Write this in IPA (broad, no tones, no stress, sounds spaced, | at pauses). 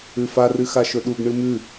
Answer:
ʉ f a r ɨ x a ʃ ɵ ɗ u ɡ ɳ ɨ m ʉ